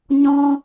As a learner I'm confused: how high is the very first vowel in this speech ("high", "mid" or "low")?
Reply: mid